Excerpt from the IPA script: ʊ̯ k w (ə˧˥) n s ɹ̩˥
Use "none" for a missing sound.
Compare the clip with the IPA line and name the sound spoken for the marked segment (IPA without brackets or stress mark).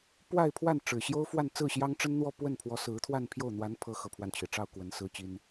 ə˧˥